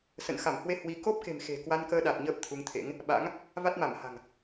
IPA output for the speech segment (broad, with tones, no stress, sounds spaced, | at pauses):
s ə̰˧˨ n x a˧˩ m h w e˧ h w i˧ k o˦˥ p̚ k e̤˨˩ m x e̤˨˩ k w a˧ n k əː˧ ɗ a˨˩ t̚ ɲ əː˦˥ p̚ t̪ʰ u˧ ŋ t̪ʰ ḛ˧˥ ŋ | ɓ a̰˧˥ ŋ | v a˦˥ t̚ m a˧˩ m h a̤˨˩ ŋ